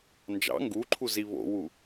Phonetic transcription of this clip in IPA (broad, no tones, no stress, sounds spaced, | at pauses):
n d͡ʒ ɑ̰ ŋ ɡ u ǃʰ u z i β o̰ w u